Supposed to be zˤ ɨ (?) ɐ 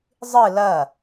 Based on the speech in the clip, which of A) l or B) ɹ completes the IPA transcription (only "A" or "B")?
A